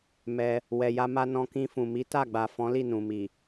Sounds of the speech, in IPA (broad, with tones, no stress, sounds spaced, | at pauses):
m ɛ˧ | w ɛ˨ j a˧ m a˧ n ɔ̃˧ k ĩ˧ f ũ˨ m i˨˦ t a˦˨ ɡ͡b a˨ f ɔ̃˨˦ l i˦˨ n ũ˨ m i˨